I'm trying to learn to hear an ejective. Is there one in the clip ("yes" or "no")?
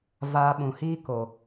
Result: no